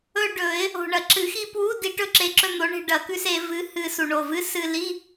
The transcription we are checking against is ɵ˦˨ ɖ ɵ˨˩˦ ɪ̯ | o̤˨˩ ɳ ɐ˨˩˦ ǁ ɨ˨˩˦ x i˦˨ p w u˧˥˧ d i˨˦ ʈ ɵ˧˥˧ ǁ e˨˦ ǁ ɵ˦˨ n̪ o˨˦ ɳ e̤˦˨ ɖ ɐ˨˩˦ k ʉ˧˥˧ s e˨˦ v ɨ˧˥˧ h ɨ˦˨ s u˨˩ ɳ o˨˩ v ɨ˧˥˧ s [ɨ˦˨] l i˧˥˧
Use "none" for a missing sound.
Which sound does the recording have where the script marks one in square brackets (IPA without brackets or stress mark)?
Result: ɨ˦˨